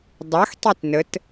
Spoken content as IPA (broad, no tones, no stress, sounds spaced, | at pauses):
dˤ a x tˤ i t n ə t